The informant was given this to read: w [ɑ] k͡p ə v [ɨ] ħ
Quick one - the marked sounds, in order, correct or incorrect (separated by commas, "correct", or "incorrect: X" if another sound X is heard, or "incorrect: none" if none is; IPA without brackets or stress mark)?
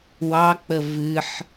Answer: correct, correct